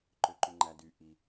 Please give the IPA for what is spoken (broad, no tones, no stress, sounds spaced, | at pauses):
ǃ ø ǃ y ŋ͡ǃ æ d y ʔ i